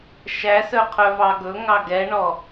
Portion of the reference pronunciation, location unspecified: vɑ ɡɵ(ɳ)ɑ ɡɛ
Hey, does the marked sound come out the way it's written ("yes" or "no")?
no